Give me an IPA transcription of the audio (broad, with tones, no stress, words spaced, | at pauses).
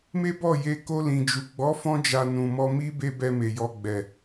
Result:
me˦ bɔ˦˨je˧ ko˧ lĩ˨d͡ʒu˨ ɡ͡bɔ˨˦fɔ̃˧d͡ʒa˨ nũ˨mɔ˧mi˦ be˦bɛ˧ me˨jɔ˧ɡ͡bɛ˨